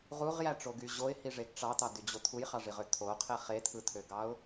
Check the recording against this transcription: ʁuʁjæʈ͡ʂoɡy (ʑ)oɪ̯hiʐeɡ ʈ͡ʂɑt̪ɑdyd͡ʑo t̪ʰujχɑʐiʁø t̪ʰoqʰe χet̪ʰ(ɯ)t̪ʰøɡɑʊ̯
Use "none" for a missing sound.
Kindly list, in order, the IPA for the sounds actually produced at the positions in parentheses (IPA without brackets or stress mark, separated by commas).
ʑ, ɯ